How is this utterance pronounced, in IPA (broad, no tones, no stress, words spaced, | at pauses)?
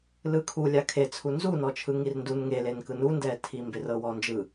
lɯkʰu lʲakʰe t͡sʰunzunɔt͡ʃʰɯ ŋirndun ŋelenkɯ nundɛtʰi mberɤwɔnd͡ʒɯ